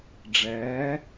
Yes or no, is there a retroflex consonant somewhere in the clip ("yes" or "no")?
yes